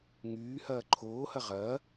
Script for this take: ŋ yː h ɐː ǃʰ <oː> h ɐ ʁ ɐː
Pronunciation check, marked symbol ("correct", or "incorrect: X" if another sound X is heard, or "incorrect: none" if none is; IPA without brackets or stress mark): correct